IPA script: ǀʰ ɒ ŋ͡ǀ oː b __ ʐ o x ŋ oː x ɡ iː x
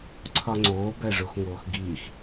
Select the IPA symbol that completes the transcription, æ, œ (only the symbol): æ